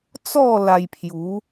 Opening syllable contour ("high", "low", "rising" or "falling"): falling